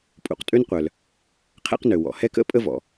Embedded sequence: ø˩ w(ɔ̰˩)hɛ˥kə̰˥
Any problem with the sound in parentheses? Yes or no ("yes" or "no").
no